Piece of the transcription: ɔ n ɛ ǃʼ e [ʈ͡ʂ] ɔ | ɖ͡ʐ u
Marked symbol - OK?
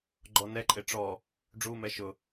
yes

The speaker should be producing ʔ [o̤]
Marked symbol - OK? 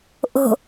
yes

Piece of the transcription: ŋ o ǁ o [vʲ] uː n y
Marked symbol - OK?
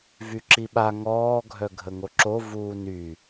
no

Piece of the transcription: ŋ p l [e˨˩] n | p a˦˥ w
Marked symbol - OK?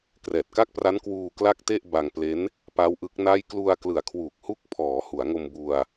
no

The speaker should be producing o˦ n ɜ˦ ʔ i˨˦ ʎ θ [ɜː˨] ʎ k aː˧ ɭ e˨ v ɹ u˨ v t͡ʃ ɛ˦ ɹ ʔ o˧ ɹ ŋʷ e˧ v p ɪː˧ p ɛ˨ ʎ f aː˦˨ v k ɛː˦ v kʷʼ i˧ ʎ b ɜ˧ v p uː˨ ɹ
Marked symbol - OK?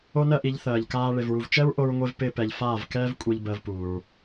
yes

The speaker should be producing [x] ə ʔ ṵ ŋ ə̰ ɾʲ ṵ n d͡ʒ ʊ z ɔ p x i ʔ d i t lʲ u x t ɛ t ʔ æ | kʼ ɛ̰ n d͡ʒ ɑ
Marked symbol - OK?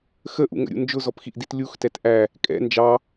yes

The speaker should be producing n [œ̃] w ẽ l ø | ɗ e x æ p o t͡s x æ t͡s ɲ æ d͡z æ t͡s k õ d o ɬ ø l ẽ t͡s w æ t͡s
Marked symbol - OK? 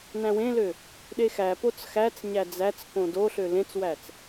no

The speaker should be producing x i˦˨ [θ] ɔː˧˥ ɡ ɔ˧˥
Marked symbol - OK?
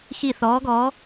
yes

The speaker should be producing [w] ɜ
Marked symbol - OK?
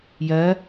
no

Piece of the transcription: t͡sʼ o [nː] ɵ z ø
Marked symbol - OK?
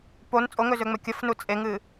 no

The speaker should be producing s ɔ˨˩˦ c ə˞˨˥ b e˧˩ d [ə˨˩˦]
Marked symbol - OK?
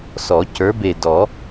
no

